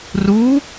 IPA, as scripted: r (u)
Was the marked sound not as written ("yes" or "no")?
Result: no